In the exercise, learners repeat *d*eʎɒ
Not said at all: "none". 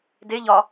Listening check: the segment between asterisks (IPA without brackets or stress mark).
d